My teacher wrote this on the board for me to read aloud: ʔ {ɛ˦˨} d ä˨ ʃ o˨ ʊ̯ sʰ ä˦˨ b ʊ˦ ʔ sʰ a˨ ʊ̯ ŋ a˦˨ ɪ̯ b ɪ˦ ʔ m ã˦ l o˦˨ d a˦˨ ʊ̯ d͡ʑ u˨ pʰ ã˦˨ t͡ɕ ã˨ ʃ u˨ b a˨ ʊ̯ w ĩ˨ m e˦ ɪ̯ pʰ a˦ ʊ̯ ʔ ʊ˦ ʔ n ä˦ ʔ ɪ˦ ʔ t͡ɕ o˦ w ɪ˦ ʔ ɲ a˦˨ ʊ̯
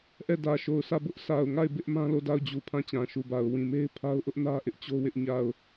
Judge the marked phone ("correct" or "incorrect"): correct